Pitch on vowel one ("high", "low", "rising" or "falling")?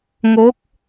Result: rising